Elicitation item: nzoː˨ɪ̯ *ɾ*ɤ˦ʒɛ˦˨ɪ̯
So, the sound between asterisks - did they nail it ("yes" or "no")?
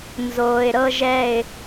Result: yes